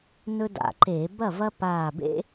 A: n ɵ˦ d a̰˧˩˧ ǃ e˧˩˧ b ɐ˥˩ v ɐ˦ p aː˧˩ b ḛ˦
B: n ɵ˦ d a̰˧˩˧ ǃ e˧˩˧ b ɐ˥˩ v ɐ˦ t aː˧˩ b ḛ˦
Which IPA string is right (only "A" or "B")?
A